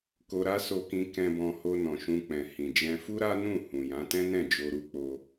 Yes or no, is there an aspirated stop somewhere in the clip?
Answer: no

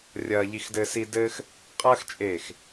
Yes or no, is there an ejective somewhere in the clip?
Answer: yes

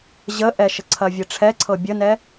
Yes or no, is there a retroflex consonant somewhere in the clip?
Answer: yes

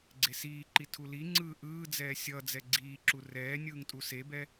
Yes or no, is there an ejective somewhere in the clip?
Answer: yes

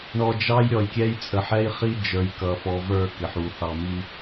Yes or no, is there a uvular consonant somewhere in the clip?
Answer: yes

